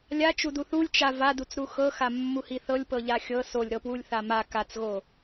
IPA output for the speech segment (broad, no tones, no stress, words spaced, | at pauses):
lʲat͡ʃudu θulʲ t͡ʃa vadut͡sɾu xɤxamːuhi θɤlʲpɤʎa xʲɤ solʲɾɤpwulʲθa ma kat͡sɣo